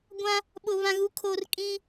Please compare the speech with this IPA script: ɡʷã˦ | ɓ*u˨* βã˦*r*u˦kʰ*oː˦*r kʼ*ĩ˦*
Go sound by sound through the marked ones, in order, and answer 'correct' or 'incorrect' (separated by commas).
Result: incorrect, incorrect, correct, correct